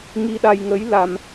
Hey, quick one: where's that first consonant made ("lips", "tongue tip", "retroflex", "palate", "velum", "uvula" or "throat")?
velum